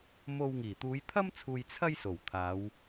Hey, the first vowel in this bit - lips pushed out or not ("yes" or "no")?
yes